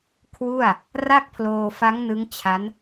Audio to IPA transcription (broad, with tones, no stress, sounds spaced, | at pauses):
kʰ w u˥˩ a̯ | r a˥˩ k̚ pʰ l oː˧ f a˦˥ ŋ n ɯ˦˥ ŋ t͡ɕʰ a˦˥ n